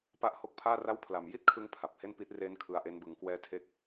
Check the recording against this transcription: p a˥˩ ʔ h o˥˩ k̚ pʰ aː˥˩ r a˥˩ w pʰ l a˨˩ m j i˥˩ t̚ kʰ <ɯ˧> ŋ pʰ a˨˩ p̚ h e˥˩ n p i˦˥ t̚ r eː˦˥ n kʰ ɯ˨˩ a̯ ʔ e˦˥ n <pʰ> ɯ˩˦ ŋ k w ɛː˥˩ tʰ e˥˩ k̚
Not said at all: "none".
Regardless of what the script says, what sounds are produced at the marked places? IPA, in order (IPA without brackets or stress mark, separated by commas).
ɯ˧, b